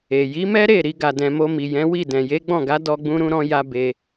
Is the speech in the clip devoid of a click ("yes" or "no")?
yes